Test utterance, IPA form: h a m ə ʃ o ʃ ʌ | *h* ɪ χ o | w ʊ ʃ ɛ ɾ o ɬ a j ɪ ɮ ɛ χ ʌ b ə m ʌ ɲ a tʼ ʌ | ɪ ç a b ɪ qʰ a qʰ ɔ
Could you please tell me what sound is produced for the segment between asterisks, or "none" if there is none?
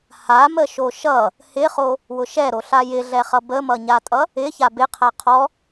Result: h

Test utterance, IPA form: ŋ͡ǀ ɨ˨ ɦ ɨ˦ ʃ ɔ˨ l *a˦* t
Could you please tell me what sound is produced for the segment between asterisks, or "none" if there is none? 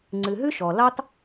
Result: ɑ˦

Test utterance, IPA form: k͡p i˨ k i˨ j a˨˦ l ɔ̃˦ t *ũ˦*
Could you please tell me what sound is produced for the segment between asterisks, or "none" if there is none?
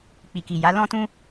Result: ũ˦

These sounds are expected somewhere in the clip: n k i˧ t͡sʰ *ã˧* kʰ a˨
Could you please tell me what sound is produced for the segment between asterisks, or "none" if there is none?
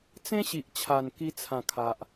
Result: ã˨˩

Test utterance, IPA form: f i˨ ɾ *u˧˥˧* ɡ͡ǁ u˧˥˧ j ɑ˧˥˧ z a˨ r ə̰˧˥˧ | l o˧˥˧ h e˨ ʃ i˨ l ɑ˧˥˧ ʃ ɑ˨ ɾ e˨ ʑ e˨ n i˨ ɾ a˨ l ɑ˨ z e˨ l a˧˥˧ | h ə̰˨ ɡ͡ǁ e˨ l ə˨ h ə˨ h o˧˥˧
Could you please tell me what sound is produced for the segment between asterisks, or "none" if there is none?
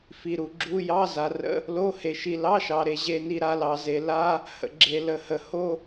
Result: u˨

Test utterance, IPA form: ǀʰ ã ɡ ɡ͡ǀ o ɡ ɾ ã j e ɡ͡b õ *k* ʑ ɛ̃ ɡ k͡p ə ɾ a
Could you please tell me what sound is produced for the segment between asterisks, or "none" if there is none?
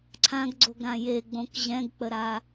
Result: k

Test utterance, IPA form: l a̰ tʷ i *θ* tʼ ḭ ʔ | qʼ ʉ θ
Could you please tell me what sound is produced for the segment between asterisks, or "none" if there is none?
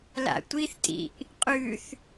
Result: θ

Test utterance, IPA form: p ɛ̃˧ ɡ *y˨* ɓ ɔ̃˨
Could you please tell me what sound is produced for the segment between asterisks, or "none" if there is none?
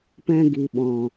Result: i˨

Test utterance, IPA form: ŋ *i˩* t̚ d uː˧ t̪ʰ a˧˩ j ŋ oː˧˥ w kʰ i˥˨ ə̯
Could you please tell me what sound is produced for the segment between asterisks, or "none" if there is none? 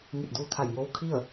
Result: i˧˩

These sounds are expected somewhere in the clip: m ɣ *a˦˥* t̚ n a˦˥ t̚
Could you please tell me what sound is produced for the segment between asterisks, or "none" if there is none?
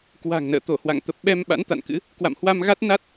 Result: a˦˥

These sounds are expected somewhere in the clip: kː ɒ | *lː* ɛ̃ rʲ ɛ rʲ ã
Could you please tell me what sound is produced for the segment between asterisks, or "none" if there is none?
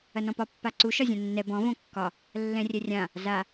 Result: lː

